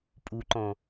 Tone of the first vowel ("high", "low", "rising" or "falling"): low